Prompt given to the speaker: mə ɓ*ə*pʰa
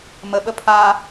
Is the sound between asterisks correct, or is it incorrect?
correct